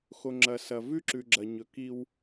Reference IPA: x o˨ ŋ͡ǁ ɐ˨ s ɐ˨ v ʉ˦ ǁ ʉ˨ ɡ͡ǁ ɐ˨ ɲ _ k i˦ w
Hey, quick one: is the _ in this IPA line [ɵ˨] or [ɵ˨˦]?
ɵ˨˦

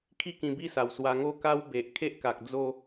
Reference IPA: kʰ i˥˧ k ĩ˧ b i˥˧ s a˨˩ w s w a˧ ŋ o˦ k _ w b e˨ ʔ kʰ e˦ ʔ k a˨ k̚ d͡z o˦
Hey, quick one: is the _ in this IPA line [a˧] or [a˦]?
a˦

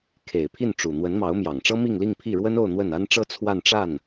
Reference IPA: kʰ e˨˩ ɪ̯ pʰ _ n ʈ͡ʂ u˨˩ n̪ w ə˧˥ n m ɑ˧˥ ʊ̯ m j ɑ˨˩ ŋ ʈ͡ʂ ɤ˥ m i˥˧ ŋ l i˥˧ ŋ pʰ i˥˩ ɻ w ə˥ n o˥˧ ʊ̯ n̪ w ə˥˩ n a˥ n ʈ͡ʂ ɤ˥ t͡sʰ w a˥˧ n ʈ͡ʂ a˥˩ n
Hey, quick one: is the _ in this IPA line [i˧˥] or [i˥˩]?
i˥˩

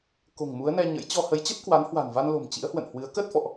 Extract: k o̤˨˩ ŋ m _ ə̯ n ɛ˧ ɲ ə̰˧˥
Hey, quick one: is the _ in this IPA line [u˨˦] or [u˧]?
u˨˦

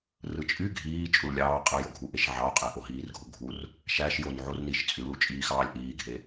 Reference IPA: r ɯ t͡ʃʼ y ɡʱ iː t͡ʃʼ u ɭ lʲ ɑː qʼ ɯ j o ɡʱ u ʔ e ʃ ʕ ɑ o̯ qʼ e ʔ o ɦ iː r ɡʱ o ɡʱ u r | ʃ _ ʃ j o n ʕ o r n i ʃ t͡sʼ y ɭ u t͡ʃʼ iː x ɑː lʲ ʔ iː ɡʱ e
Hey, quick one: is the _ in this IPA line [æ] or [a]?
æ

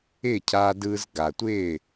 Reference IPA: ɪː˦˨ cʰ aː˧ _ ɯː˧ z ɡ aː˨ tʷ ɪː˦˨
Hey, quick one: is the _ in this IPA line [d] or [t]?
d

